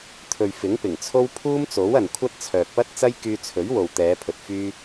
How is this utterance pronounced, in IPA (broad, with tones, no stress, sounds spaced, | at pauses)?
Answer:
t̪ʰ ɵ˨ ɥ f ɪ˨˥ ŋ p ɪ˨˩ ŋ t͡sʰ o˥ w pʰ uː˥ m t͡s o˨˥ w ɐ˨ n kʷʰ ɐ˥ t̚ t͡sʰ œː˨ k̚ p ɐ˥ t̚ t͡s ɐ˥ j k yː˧ t͡sʰ ɵ˨˥ ɥ w o˨ w t̪ ɛː˨˧ pʰ ɵ˨ t̚ f yː˧